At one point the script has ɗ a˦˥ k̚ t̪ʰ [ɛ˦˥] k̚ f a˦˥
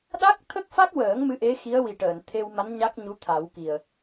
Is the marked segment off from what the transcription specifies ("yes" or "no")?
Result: yes